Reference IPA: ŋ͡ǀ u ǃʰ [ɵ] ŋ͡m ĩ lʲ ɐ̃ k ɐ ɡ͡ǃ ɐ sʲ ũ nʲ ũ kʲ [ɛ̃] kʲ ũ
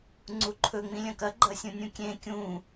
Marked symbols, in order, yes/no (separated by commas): yes, no